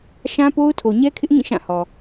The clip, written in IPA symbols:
ʃ ã˦ p o˦ ʊ̯ tʰ o˨ ɲ ɛ˦ kʰ ɪ˦ ʔ ŋ ĩ˦˨ ʃ ã˦˨ h ɔ˨

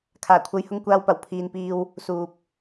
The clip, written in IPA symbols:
kʰ aː˨˩ kʷʰ ɐ˨˧ j h ʊ˥ ŋ kʷ aː˧ w p ɐ˨˩ w pʰ iː˨ n p iː˧ w | s uː˨ p̚

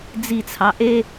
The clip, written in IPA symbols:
d͡z i t͡sʰ ɑ ʔ e

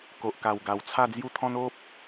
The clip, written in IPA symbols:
k o˨ ʔ k a˨˩ w ɡ a˨˩ w t͡sʰ a˥˧ d͡z j u˦ t̪ʰ ɔ̃˦ n o˦ p̚

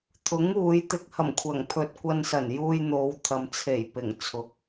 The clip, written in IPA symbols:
t̪ʰ ʊ˨˥ ŋ uː˨˧ j t̪ ɪ˧ k̚ h ɐ˨˩ m kʷʰ ɐ˨˩ ŋ pʰ ɵ˨ t̚ kʷ ɐ˧ n s ɐ˨˩ n j uː˧ j n̪ o˨˧ w t̪ʰ ɐ˨ m t͡sʰ e˨˩ j p ɪ˨˩ ŋ t͡sʰ ʊ˨ k̚

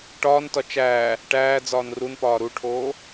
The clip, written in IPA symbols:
ʈ ɒː n t ɒ t͡ʃ æː | ʈ æː d͡z ɒː n r u n p ɒː ɾ u ʈʰ oː

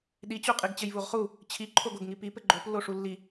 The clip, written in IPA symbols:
ɗ i t͡ɕ u qʼ i ɡ t͡ɕ ɘ j v u ʁ χ u | t͡ɕʰ i ǃʰ o ɡ o ɡ ŋ i p i p ɘ ɡ͡ǃ o p lː o ʂ u lː i

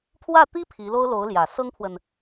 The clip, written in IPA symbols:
pʰ w ä˥˩ t̪ i˥ pʰ i˧˥ l o˥ ʊ̯ l o˧˥ ʊ̯ l j ä˨˩ s ɤ˥ ŋ pʰ w ə˨ n

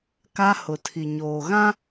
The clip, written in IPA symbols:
k a˦ h ʊ˨ tʰ i˨ ɲ oː˨ ɣ ã˦

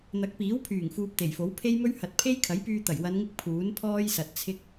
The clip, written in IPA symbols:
n̪ ɐ˨˥ k̚ p iː˨˥ w pʰ yː˨˩ ŋ f uː˧ p̚ t̪ e˨˩ j f o˨˥ w pʰ e˥ j m ɵ˥ ɥ h ɐ˨ t̚ pʰ e˥ j kʰ ɐ˨˥ j p yː˧ t̪ ɐ˨˩ j w ɐ˨˧ n ŋ ɪ˧ k̚ pʰ uː˨˥ n pʰ ɔː˥ j s ɐ˨ t̚ t͡sʰ ɪ˥ k̚

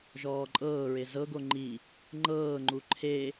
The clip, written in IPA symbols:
ʒ ɔː ǃʼ ɤː ɹ e z ɤ ɡ o ŋ͡ǃ i | ŋ͡ǃ ɤː ŋ͡ǃ u ǃʰ e

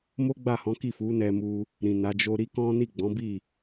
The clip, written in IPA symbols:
m o˦ ɡ͡b a˦˨ h ɔ̃˨˦ k i˦˨ f u˨˦ n ɛ˧ m u˧ | ɾ ĩ˨ n a˨˦ d͡ʒ o˧ ɾ i˦ k ɔ̃˦ n i˦˨ ɡ͡b ɔ̃˨˦ b i˦˨

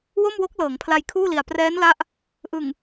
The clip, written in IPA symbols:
w o˥˩ m w o˦˥ k̚ l ɤː˩˦ ŋ pʰ l a˧ j kʰ uː˥˩ l i˨˩ a̯ p r ɛː˦˥ n l a˦˥ ʔ | ʔ ɯ˨˩ ŋ

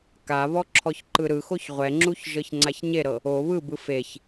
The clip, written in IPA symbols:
k a β ɔ ǁʰ ɔ ç ǃ ɯ ɾ ɯ x o ç ʁʷ ɛ ŋ͡ǁ u ç ʒ ɤ ç ŋ͡ǀ a ç ɲ e ɾ ɤ | o β ɯ b ɯ f e ç

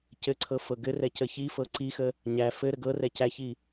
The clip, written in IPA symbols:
c ɘ ǀʰ ɤ f ɤ ɡ ɘ r ɛ c ə ç i f ɤ ǀ i x ə | ɲ æ f ɘ ɾ ə ɡ ɤ r ɛ c æ ç i

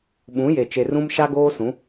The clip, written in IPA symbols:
ɓ ũ˨˦ j e˨ t͡ʃ e˨ r ũ˦ m ʃ a˦ ɡ oː˦ s ũ˨˦

